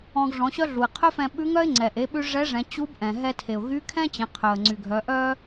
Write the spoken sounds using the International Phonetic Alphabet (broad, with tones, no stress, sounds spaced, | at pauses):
ɔ̃˧ ɡ ʐ ɔ̃˩˧ ɕ œ˥ ɮ u˩ ɪ̯ qʰ œ˥ f ɛ̃˧ ɓ ʉ˧˥ ŋ œ˥ ɪ̯ ŋ͡ǀ ɛ˩ ʔ e˩˧ ɓ ʉ˧ ʐ ɛ˧˥ ʐ ɛ̃˩˧ t͡ɕ u˧˥ b ʔ ɛ̃˩ ɦ ɛ˧ tʰ e˩ ʊ̯ ɣ y˧˥ kʰ ɛ̃˥ t͡ɕ ɛ̃˩˧ qʰ œ˩ ə̯ ŋ͡ǀ y˩ ɡʱ œ˩˧ ʔ œ˥